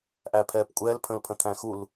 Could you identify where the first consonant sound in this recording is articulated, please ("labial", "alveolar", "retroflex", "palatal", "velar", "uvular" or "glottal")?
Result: glottal